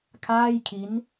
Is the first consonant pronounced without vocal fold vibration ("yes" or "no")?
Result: yes